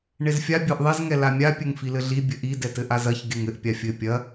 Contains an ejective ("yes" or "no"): no